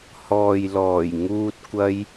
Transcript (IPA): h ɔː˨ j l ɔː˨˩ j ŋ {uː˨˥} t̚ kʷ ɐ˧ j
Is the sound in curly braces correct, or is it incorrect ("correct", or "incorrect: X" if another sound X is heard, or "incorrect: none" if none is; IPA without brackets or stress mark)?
incorrect: uː˧